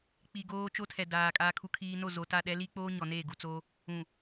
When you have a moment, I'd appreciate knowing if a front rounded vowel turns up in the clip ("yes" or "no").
no